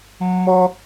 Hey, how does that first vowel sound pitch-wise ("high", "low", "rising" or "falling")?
high